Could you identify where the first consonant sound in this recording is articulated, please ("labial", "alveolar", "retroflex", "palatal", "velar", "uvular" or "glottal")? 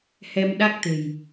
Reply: glottal